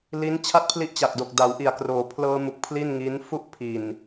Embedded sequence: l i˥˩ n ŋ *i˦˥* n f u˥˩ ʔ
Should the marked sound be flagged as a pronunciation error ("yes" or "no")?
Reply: no